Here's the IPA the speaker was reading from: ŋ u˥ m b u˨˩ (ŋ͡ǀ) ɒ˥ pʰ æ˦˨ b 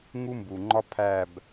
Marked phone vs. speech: incorrect: ŋ͡ǃ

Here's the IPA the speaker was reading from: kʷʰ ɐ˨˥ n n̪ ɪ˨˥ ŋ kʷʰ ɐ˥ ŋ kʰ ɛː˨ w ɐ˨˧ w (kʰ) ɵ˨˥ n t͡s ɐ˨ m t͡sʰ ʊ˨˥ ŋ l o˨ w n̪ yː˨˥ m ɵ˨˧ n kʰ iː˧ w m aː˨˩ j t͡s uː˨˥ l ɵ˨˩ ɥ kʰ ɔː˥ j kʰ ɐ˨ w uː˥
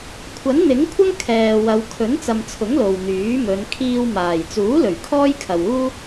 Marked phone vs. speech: correct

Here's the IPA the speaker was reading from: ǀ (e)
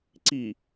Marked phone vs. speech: incorrect: i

